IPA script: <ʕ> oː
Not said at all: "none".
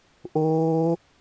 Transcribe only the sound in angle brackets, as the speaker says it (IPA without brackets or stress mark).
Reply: ʔ